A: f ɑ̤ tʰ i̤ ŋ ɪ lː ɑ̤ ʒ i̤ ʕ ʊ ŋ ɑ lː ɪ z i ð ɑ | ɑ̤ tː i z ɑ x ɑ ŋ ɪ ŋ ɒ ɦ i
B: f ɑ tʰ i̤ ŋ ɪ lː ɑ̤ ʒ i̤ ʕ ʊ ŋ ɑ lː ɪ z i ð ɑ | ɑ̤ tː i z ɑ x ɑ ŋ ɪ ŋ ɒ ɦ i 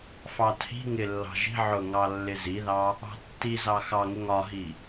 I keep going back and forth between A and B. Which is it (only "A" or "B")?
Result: B